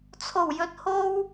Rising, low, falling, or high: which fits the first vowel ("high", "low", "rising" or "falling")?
low